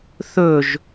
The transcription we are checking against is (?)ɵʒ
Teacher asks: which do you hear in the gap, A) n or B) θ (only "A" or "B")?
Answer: B